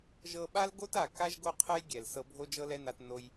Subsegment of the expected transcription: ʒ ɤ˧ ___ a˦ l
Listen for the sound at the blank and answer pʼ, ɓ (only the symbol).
ɓ